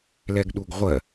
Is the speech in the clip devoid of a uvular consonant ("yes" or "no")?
no